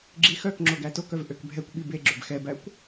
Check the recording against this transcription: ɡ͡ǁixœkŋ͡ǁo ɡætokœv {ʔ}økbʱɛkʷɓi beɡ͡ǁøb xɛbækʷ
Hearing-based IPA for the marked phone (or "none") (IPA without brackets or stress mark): ʔ